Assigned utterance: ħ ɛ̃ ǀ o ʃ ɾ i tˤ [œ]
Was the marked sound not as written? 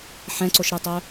no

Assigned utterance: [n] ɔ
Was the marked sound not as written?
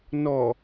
no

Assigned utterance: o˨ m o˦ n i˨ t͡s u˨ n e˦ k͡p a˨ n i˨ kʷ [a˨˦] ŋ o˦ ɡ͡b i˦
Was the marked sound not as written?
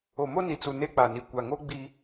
yes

